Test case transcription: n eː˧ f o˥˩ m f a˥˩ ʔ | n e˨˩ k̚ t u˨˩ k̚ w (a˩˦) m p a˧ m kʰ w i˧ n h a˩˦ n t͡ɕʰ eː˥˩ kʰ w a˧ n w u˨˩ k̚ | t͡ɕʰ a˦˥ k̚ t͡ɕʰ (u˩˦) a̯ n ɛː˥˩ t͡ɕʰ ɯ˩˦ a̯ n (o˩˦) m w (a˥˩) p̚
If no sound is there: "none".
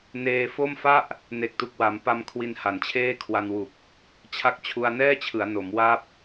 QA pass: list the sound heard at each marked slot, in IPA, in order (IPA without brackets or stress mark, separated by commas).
a˩˦, u˧, o˩˦, a˥˩